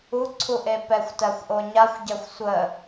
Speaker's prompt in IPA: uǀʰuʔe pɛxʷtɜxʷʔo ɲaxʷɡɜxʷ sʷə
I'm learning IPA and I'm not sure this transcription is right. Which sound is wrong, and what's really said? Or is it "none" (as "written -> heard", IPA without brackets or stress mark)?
ɡ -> ɟ